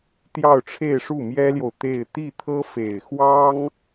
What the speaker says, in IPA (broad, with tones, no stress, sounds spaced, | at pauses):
t̪ j ɑ˥˧ ʊ̯ ʈ͡ʂʰ e˥˧ ɪ̯ ʂ u˥˩ m j ɛ˥ l j o˨ ʊ̯ t̪ e˥˧ ɪ̯ t̪ i˥˩ t̪ʰ ɤ˥ f e˨˩ ɪ̯ x w ɑ˥ ŋ